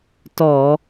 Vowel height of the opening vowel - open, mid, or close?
mid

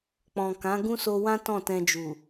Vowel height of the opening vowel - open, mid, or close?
mid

